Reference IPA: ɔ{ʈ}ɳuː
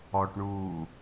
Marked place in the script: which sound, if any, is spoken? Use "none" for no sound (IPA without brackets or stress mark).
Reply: ʈ